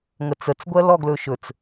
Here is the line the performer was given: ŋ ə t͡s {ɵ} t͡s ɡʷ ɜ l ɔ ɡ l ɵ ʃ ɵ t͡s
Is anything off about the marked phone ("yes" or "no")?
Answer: yes